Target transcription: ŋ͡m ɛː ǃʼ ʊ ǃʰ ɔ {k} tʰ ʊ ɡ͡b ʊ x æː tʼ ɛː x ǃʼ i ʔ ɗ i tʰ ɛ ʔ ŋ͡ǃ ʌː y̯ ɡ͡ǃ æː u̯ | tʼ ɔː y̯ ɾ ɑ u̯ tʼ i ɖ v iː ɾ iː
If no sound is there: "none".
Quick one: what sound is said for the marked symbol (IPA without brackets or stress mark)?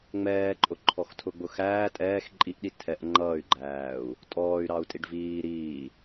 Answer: x